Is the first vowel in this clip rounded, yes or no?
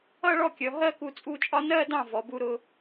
no